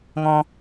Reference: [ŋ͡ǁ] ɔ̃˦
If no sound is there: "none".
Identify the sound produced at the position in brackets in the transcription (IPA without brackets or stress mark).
ŋ